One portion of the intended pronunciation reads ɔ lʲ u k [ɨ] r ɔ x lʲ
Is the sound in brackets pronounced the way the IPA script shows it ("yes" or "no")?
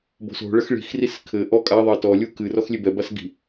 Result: yes